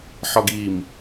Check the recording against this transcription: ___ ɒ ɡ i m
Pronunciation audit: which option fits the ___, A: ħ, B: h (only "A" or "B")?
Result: A